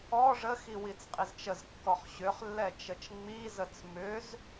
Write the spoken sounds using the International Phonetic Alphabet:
ɔ ʐ ə x i w i t͡s qʼ i z t͡ʃ ə z kː ɔ χ ɕ ʏ χ lː ɛ t͡ʃ ə t͡ʃ ŋ͡m i z ə t͡s m ʏ z

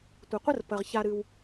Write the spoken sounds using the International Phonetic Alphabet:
tʷ ɐ˩ qʷ ə˥ r p ɐ˩ ʁ ç a˨ ɾ ɨ˩ w

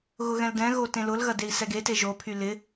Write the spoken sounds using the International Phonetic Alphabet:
ɣ ʊ ɣ ɛ̃ l d ɛ̃ ɣ o t ẽ l ʊ l ɣ ɐ d e i̯ s ɛ ɡ e t e ʒ o pʰ y l ɪ

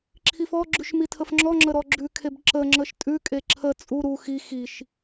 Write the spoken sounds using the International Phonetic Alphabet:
ǁʰ i f ɔ ɡ͡ǁ ʉ ʃ m i tʰ ə f ŋ͡ǁ ɔ ŋ͡ǁ ə ɾ ɔ ɡ͡ǁ ʉ kʰ e b ǁ ə ŋ͡ǁ ə ʃ tʼ ʉ kʼ e ǁʰ ə t͡sʼ u ɾ u x i x i ʃ

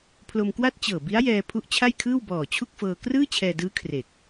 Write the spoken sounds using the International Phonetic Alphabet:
pʰ l o˧ m k w a˥˩ t̚ t͡ɕ ɤː˨˩ b i˦˥ a̯ j ɛː˧ pʰ u˦˥ ʔ t͡ɕʰ a˥˩ j kʰ ɯː˥˩ w b ɔː˨˩ t͡ɕʰ u˥˩ k̚ f ɤː˧ k r ɯː˥˩ t͡ɕʰ ɛː˧ d ɯː˦˥ kʰ r e˨˩ k̚

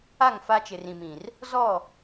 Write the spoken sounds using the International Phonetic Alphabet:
a˦˨ ŋ f a˦ t͡ʃ ɪ˨ r ĩ˨ m ĩ˨ r | z ɔ˦˨

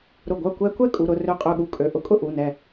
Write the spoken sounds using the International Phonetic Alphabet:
ɾ ʊ˧˩ ɡʷ œ˥˨ kʷ ɛ˦˥ kʷ ɛ˥˨ kʼ u˩˧˩ ɾ ʊ˥˨ r ø˧˩ qʼ ø˧˩ ɠ u˧˩ kʼ ø˩˧˩ ʔ ʊ˦˥ kʼ ʊ˥˨ ʔ u˩˧˩ n ɛ˧˩

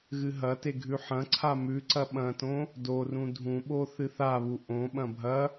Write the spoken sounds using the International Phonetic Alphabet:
ɣ ɨ ɦ ɐ t e ɡʱ ʉ ħ ɐ̃ ǀʰ a m ʉ ǀ ɐ ɓ ɐ̃ t õ | d o r ũ dʱ ũ ɓ o θ ɨ θ a β u ʔ õ ɓ ɐ̃ bʱ ɐ

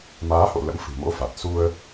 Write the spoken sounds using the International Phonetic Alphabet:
m aː˨˦ h o̰˧˨ l ə̰˧˥ m f ɨ̤˨˩ m o̰˧˥ f a˨˩ t̚ s u˧ ə̯

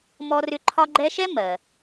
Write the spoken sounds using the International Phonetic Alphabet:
m ɔ˦ r ʏ˦ ǃʰ ɒ˦ ɡ͡ǃ ɛ˦ ʃ ɛ˥ m ɜ˩

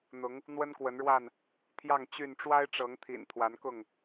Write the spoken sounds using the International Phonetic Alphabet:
n̪ ʊ˨˦ ŋ | n̪ w ə˦ n k w ə˨˦ n ɻ w a˥˨ n | t̪ʰ j ɑ˥˨ ŋ t͡ɕ y˥˨ n ʈ͡ʂ w a˦ ɪ̯ ʈ͡ʂ ɤ˨˦ ŋ t̪ʰ ḭ˨˩ n t̪ʰ w a˨˦ n k ʊ˥˨ ŋ

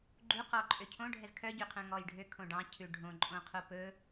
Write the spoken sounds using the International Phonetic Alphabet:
ɡ͡ǃ u q ɔ ǃʼ ø cʰ õ ɖʱ ɛ z kʰ œ ɟ ø qʰ œ̃ ŋ ɔ j ɖʱ ø kʰ õ ɖ ɑ̃ cʰ ʉ ɖʱ õ ǃʼ õ qʰ o p ɵ

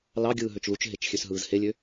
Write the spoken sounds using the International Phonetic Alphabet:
l ɑ ɡʲ ɯː ɦ ø t͡ʃ l u t͡ʃ ɦ e t͡ʃ xʲ ø s ɦ ɯː z h e lʲ ø

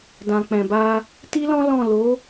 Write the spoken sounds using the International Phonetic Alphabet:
d ã˨ k͡p ɛ̃˨ b a˧ | t i˦ l ɔ̃˦ l ɔ̃˦˨ l o˨˦

